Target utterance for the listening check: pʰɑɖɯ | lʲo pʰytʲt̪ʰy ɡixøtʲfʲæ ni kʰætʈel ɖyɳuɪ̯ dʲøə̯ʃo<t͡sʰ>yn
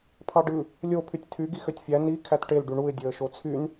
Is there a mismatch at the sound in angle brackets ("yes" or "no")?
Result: no